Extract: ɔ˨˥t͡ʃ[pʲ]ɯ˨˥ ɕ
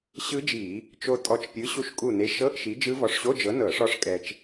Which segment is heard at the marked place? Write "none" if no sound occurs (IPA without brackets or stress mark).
pʲ